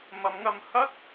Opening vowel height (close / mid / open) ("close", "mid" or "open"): open